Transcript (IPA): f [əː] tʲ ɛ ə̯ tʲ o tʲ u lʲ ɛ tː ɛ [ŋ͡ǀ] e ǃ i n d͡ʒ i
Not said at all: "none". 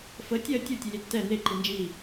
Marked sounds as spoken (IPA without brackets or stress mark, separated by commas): ə, n̪